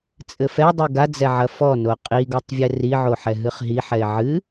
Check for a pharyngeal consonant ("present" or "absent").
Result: present